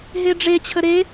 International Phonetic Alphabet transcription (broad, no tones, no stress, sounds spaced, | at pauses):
ɦ e ɖ͡ʐ e t͡ɕʰ ə ɾ e